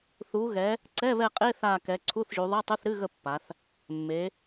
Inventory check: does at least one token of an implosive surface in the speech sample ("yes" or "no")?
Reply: no